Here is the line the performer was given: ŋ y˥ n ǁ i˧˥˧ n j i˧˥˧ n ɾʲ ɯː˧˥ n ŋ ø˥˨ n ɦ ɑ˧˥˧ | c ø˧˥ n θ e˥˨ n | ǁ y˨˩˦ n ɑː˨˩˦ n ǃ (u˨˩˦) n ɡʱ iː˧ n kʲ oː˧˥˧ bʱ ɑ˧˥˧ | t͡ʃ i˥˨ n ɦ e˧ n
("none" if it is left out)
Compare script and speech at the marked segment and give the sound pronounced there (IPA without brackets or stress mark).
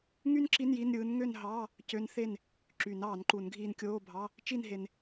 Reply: u˨˩˦